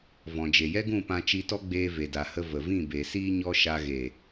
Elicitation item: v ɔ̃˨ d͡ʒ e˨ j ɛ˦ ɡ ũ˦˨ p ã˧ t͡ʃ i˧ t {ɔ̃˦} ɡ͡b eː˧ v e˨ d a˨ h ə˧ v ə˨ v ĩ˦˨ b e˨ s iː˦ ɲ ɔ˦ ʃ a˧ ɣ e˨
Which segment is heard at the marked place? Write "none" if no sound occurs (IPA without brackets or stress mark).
ɔ˦